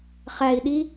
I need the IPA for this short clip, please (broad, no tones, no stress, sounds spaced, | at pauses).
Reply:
χ æ i̯ ɗ i